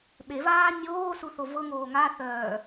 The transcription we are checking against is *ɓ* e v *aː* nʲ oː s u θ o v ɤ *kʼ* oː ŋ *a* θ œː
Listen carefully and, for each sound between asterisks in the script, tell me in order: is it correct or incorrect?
correct, correct, incorrect: ŋ, correct

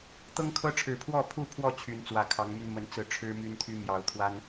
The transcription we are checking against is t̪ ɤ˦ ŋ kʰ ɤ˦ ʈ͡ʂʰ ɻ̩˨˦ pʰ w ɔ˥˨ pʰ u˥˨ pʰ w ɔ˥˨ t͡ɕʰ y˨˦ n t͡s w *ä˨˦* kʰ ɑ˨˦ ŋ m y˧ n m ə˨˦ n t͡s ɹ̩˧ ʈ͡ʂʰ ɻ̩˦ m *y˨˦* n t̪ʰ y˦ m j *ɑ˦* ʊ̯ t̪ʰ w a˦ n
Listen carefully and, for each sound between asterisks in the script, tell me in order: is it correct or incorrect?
correct, incorrect: y˦, incorrect: ɑ˨˦

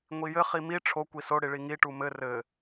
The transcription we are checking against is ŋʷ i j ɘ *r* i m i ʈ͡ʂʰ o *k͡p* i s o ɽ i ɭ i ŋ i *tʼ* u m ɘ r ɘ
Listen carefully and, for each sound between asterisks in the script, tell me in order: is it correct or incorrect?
incorrect: χ, incorrect: kʷ, incorrect: ʈ

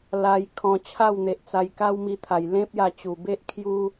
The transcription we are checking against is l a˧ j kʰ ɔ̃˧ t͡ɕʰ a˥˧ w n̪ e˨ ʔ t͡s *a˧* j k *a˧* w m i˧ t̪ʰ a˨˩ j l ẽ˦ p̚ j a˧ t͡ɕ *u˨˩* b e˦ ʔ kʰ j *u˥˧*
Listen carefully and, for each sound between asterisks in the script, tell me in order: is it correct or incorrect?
correct, incorrect: a˦, correct, incorrect: u˦

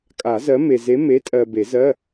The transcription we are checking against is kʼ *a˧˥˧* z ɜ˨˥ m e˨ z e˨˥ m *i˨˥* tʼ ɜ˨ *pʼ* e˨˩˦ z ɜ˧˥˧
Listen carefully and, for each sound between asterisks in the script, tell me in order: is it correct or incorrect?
incorrect: a˨˩˦, incorrect: e˨˥, incorrect: b

